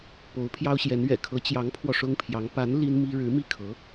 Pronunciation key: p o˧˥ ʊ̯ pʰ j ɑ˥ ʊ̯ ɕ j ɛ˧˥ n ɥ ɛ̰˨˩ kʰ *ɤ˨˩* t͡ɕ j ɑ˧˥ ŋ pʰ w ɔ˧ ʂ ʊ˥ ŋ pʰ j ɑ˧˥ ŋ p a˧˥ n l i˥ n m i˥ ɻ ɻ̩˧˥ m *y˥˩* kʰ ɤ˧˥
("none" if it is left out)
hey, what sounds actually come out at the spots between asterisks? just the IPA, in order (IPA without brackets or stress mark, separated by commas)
ɤ˧˥, i˥˩